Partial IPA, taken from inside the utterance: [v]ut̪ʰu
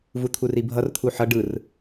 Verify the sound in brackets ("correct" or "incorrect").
correct